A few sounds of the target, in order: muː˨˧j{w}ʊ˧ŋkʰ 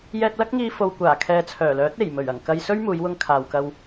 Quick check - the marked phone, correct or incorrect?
correct